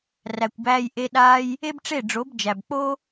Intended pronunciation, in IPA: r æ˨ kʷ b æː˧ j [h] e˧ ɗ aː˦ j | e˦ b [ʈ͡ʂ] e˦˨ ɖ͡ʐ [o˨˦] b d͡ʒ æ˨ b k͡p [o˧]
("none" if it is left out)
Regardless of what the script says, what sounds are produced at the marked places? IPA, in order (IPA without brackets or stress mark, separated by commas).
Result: ʔ, ʈ͡ʂ, o˨˦, o˦